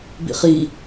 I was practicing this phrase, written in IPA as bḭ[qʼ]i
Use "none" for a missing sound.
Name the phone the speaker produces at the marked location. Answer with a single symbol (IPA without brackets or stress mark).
χ